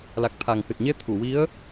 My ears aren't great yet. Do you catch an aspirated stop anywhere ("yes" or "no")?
yes